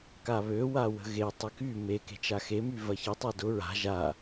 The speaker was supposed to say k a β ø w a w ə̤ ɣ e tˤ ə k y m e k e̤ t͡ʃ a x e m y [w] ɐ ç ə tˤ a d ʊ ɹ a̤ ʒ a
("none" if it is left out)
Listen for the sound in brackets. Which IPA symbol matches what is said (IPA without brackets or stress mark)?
v